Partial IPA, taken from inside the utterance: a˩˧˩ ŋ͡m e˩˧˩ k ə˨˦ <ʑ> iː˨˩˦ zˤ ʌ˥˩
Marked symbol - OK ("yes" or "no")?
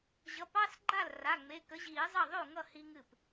yes